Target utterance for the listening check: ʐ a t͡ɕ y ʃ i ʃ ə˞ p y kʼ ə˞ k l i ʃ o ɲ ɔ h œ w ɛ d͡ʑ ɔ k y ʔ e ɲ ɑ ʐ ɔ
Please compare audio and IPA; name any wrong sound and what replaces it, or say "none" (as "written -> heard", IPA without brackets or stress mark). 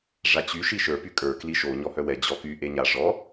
ɑ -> a